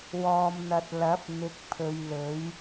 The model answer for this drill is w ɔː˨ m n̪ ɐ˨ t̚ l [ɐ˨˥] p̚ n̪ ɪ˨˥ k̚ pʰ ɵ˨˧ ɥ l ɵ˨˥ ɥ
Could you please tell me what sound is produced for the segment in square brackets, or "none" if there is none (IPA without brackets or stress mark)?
ɐ˨˥